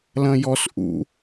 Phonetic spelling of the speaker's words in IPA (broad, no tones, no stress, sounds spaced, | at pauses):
l ɐ̃ j ɔ s ʔ ṵ